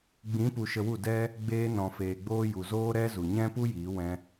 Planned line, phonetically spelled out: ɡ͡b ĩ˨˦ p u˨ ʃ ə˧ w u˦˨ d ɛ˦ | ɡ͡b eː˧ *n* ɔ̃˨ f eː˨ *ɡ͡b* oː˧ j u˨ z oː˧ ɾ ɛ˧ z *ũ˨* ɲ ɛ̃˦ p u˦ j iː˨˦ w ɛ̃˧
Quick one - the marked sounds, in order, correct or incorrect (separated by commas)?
correct, correct, incorrect